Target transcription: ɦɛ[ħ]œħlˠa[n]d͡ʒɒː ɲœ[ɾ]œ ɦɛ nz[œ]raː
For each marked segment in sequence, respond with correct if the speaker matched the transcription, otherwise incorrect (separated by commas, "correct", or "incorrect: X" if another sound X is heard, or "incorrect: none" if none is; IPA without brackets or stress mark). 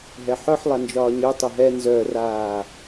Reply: correct, correct, incorrect: tˤ, correct